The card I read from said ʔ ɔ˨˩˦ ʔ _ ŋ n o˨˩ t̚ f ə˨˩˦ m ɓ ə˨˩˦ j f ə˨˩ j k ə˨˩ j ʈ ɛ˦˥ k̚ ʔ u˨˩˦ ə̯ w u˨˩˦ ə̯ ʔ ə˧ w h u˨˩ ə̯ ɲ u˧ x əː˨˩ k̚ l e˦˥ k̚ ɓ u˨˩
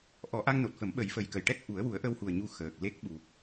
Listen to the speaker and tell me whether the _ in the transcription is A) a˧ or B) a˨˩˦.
A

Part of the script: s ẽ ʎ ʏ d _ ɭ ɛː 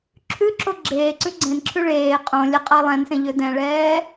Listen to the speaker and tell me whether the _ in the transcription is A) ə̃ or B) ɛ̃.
B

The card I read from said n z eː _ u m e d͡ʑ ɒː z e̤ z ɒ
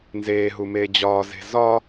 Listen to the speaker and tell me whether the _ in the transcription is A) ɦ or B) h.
A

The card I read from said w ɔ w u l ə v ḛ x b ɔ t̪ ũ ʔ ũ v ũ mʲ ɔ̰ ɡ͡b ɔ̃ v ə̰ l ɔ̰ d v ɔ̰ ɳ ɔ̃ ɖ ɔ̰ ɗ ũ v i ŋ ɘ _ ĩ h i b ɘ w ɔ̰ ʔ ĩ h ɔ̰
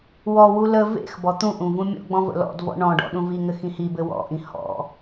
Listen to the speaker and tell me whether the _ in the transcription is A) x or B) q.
A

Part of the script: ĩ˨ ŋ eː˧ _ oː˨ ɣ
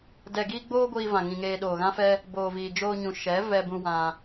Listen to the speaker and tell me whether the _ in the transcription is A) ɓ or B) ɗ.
B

